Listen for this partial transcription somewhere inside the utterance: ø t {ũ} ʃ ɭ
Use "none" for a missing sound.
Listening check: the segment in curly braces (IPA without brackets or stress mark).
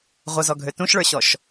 ũ